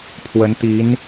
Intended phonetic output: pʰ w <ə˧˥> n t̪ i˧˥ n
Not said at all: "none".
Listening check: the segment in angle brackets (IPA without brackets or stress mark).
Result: ə˧˥